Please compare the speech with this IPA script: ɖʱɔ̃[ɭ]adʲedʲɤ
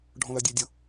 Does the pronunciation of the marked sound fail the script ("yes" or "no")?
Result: yes